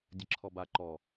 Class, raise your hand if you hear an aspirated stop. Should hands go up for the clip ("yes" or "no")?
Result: yes